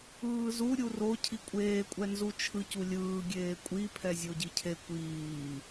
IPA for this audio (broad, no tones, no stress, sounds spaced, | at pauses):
ɯː z u ɾʲ u r o cʰ i kʷʼ eː kʷʼ ɛ n z u t͡ʃʰ ɯ c u lʲ ɯː ɡʲ eː kʷʼ i pʰ ɛ zʲ o ɟ i cʰ e kʷ iː